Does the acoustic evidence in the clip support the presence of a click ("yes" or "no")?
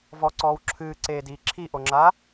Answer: yes